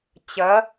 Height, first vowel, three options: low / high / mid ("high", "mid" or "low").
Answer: low